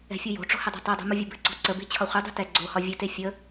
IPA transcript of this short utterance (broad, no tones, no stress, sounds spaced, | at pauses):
ɛ̤ fʲ u j o̤ ʈ͡ʂ o̤ h ə dˤ ṳ tˤ ɛ dˤ ṳ m u vʲ ɘ b ɘ ǀ ɔ̤ ǀ ə b e̤ t͡ɕʰ ɒ χʷ ʌ dˤ ṳ t ɛ ɡ͡ǀ o h ɒ vʲ ɘ t e fʲ ə